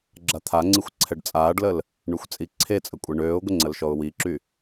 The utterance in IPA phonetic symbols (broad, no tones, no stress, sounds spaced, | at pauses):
ɡ͡ǁ a t̪ʰ a ŋ͡ǀ i xʷ ǀʰ ɛ ɖ t͡sʼ aː ɖ l ə l | ɳ y xʷ t͡sʼ i ǀʰ e t͡sʼ ə kʷʼ e ɳ øː ʊ̯ ɡʷ ə ŋ͡ǀ ə l ʃ ɔ ʊ̯ w i ǁ y